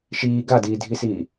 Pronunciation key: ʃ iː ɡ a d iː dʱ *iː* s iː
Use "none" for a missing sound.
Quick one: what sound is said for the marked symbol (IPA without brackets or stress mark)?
i